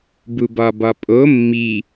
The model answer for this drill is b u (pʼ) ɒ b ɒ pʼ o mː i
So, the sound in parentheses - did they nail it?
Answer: no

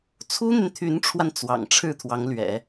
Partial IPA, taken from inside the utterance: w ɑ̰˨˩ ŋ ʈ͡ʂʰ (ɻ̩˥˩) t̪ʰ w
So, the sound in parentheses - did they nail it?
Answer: yes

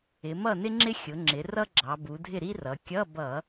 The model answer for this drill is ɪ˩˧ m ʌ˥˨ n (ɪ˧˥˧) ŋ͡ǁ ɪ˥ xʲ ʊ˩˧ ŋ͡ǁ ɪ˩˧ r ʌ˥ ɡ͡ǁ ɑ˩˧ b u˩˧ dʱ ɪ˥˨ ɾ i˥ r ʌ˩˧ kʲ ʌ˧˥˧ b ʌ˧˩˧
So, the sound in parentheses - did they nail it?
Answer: no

